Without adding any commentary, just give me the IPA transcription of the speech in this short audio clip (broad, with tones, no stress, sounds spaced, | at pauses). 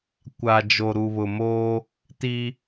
kʷ a˨ d͡ʒ o˨ ɾ u˨ β ʊ˨ m o˦ | t i˦